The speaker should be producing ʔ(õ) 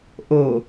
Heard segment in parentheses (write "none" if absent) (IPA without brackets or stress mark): o